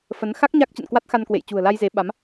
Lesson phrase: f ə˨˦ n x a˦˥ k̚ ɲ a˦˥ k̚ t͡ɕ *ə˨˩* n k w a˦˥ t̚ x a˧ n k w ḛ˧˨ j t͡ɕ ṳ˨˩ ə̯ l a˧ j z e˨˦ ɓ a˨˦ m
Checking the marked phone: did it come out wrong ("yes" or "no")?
yes